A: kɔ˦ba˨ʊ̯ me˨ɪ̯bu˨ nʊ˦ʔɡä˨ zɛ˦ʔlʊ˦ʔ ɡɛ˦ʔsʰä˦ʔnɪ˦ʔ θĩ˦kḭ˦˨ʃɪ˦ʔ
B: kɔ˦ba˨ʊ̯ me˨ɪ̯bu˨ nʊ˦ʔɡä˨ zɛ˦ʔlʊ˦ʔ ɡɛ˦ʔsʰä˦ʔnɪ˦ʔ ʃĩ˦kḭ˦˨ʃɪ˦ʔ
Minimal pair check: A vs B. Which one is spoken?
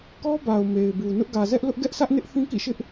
A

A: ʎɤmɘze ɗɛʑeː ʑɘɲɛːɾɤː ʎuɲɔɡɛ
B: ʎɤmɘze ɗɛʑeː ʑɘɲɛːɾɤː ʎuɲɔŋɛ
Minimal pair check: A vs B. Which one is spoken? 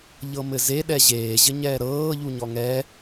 B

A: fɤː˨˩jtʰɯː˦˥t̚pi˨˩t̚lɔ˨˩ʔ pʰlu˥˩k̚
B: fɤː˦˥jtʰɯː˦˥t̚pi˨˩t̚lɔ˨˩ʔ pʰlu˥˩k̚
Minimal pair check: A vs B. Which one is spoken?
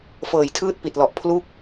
A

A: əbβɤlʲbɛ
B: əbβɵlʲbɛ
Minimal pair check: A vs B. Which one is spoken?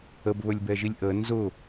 B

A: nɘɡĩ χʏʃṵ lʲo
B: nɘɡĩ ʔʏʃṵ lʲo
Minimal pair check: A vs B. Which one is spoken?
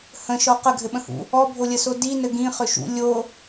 A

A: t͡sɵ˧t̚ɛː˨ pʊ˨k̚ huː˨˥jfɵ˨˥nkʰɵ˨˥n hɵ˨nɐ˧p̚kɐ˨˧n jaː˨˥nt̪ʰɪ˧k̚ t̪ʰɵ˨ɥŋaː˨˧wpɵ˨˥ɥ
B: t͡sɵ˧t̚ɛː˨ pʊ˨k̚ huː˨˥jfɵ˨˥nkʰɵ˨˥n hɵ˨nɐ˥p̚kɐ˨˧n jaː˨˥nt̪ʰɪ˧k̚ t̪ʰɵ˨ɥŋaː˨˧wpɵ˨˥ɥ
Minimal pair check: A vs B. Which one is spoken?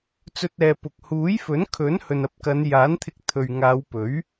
A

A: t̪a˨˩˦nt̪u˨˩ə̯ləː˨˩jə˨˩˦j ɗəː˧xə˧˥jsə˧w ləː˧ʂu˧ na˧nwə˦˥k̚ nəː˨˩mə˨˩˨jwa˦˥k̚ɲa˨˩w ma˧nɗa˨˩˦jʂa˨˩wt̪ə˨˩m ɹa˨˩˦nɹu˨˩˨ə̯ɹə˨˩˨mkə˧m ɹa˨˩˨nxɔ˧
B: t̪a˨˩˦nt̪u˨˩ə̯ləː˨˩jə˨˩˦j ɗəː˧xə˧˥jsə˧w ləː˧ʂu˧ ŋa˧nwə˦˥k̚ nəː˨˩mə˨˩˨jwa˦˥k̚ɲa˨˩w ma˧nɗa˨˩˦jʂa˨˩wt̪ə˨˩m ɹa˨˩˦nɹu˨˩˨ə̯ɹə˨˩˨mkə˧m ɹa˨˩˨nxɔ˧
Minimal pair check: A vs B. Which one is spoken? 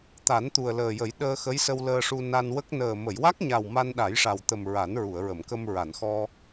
A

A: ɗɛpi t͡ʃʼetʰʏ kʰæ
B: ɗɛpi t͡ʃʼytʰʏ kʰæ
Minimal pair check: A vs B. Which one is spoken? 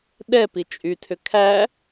B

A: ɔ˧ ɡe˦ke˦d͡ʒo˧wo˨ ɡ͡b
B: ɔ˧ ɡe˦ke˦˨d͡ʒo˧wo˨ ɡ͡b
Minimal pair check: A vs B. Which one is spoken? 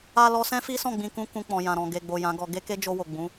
A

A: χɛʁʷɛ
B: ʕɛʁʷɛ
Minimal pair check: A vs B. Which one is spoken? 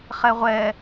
A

